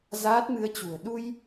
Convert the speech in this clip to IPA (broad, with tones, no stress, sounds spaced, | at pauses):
z aː˦˥ t̚ m ɨ˧ ə̯ t͡ɕ ṳ˨˩ ə̯ ɗ u˧ j